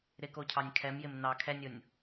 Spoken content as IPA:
ɾɪkocʰɑnʲ kʰɛm jɪmnɑ kʰɛnʲonʲ

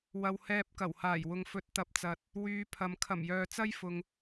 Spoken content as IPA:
wɐ˨whɛː˧p̚kɐ˨˩whaː˨˩j wʊ˨ŋfɵ˨˥t̚ t̪ɐ˨p̚t͡sɐ˨t̚ | wyː˨˧pʰɐ˨m kʰɐ˨˩mjœː˨t͡sɐ˥jfʊ˨ŋ

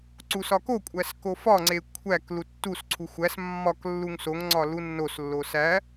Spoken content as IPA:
ǀusɒkokʷʼæs kofɒŋ͡ǀe kʷʰæk lutːusǀʰu xʷæs mːɒk lːuŋsoŋŋ͡ǀɒ lunːoslːo sæ

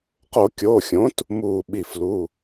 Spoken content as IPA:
qo˧˩˧kʲoː˩˧˩xʲõ˩˥t | muː˧˩ɓi˧˩flu˩˧˩

